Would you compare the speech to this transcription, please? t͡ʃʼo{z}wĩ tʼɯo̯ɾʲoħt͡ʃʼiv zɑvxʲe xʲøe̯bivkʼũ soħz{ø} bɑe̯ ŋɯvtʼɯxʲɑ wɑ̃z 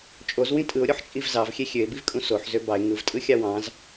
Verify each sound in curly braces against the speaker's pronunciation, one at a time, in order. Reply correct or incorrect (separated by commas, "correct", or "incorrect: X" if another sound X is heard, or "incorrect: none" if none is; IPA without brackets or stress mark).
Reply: correct, correct